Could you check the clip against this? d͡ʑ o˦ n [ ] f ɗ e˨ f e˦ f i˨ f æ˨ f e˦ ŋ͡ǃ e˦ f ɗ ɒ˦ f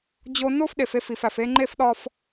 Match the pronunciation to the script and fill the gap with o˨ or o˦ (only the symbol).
o˦